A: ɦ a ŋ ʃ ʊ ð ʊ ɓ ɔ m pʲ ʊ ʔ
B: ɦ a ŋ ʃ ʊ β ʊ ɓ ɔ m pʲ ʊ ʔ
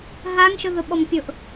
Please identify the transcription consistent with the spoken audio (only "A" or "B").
A